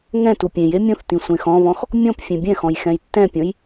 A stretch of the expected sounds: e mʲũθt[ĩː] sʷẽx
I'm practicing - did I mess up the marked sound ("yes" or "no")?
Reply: yes